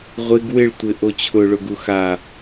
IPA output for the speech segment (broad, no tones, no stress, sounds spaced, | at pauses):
ʁʷ ɪ ɡ w ɪ ɭ tʷ ɪ ʔ o t͡ɕʰ ʊ ɭ ʊ ɡ u x a